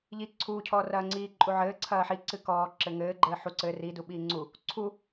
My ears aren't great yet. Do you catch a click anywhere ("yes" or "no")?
yes